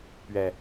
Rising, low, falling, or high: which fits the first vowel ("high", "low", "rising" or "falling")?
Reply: low